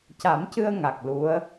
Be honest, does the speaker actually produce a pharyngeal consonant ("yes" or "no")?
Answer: no